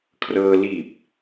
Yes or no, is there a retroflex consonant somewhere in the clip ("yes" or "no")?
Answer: no